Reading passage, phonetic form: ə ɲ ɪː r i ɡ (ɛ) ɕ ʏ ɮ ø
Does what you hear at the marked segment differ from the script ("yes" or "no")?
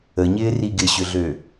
yes